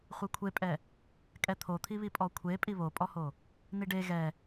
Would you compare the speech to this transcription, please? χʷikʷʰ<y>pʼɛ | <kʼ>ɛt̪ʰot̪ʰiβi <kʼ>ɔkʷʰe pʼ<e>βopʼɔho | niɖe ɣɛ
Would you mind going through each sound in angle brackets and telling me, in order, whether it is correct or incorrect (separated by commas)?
incorrect, correct, incorrect, incorrect